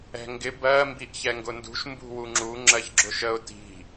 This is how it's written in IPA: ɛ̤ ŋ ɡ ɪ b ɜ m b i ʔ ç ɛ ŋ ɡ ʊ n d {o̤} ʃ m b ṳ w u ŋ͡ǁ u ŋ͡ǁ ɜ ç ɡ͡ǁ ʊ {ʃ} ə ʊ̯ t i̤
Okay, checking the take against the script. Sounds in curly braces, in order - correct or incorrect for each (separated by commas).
incorrect, correct